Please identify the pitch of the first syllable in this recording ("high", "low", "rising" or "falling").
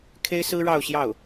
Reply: high